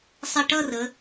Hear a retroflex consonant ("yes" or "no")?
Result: yes